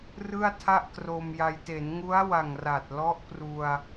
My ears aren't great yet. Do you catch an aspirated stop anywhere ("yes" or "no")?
yes